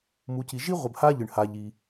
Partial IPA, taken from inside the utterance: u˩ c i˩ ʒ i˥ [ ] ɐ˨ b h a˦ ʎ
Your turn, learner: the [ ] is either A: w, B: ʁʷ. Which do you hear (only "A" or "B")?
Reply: B